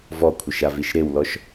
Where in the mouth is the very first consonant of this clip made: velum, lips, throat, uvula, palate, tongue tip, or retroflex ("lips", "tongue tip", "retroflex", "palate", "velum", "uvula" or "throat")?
lips